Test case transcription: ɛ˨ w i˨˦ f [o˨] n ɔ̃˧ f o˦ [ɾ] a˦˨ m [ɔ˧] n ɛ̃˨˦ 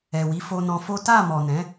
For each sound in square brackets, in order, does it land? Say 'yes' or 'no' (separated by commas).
no, no, no